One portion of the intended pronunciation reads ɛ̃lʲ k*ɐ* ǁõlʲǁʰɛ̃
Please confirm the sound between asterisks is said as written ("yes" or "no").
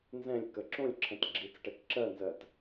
no